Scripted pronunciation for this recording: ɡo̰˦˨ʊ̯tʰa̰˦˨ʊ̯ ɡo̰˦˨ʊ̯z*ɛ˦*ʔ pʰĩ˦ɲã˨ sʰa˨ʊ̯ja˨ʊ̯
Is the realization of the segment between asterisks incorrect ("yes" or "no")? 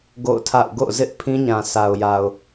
yes